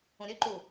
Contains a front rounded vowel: yes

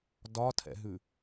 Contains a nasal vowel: no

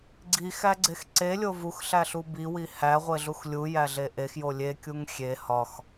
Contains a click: yes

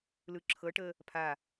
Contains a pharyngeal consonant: no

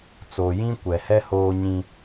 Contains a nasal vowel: yes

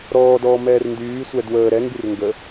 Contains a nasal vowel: no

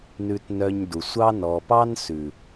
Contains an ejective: no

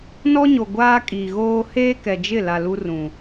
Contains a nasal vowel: yes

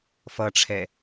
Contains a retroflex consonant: yes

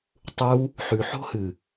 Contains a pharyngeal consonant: yes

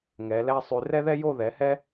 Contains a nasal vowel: no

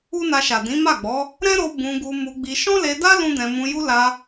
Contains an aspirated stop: no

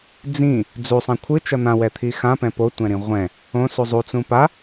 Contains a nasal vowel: yes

